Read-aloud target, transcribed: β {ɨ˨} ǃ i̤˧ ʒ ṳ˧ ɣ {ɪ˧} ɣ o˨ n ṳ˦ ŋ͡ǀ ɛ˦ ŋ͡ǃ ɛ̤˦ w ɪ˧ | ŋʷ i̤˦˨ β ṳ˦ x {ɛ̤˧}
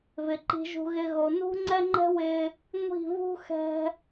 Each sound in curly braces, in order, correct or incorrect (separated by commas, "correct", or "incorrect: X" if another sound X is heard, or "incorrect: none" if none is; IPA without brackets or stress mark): incorrect: ɪ˨, correct, correct